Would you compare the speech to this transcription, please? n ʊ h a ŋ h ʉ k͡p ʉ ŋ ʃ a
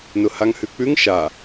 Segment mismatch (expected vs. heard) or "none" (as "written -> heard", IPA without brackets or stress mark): none